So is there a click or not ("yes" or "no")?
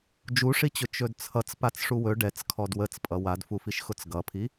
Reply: no